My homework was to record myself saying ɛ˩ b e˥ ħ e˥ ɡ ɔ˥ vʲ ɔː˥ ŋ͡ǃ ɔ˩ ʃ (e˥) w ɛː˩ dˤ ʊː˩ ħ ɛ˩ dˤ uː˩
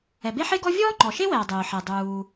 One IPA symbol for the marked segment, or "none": e˥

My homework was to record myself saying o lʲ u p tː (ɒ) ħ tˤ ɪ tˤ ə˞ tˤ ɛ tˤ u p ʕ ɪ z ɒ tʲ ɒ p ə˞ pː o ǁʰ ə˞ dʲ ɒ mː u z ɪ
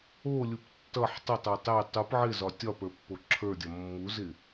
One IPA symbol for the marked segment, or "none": ʌ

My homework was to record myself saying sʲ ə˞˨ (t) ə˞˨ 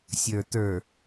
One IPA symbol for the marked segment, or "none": t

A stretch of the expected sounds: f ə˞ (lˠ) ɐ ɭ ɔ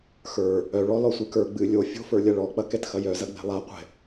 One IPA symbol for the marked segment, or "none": lʲ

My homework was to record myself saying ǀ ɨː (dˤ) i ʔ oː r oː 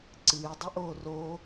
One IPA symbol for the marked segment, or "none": dˤ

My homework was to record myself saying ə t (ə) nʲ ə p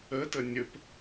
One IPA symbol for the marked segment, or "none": ə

